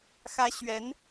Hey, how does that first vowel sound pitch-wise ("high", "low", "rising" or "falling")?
high